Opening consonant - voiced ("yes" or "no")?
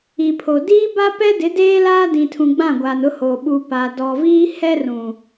no